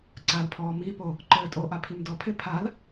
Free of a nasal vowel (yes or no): yes